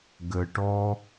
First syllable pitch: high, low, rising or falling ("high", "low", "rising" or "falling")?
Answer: low